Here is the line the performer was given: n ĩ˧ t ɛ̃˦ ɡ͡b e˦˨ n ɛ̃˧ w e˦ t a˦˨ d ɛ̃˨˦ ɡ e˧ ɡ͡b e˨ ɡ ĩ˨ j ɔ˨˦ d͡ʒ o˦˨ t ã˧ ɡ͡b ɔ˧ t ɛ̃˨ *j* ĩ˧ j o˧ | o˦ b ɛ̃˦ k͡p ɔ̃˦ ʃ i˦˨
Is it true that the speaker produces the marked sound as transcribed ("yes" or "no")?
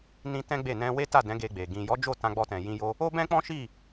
yes